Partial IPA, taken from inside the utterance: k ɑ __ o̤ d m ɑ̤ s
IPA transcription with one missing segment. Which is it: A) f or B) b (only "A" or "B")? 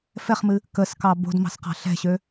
B